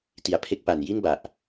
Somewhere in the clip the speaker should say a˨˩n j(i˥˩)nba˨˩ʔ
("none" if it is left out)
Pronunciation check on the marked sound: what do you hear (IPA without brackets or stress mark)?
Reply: i˥˩